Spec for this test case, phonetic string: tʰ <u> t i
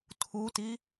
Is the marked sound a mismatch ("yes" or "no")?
no